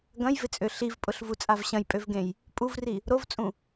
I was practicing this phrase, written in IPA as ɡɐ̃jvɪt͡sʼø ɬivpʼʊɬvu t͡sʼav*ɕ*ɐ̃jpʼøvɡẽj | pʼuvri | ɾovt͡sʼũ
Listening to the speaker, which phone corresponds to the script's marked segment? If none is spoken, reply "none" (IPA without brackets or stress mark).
ɕ